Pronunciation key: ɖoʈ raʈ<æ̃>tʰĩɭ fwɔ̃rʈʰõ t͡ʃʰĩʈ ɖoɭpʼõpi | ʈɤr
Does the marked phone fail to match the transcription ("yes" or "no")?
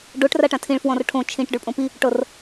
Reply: yes